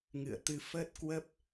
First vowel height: high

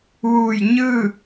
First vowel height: high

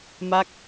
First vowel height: low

